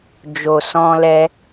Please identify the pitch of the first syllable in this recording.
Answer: low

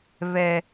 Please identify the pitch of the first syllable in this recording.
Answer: low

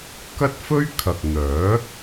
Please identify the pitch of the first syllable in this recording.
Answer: high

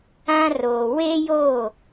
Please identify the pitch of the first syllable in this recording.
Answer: high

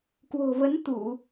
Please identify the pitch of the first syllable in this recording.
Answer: low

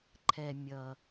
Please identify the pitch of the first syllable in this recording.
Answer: low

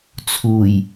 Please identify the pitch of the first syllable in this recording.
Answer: low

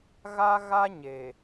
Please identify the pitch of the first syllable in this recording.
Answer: high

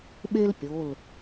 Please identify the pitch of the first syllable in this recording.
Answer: high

